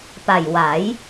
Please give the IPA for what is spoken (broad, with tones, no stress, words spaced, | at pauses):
pa˨˩j wa˩˦j